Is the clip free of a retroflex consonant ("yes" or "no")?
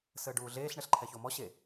no